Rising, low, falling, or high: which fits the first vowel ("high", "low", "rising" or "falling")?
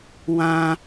low